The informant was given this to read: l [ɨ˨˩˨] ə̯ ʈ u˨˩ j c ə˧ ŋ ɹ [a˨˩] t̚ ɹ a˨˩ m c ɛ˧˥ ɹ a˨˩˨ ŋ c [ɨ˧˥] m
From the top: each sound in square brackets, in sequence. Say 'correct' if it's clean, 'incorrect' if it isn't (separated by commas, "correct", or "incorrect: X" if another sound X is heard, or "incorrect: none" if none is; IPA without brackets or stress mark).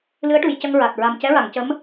incorrect: ɨ˧˥, correct, incorrect: ə˧˥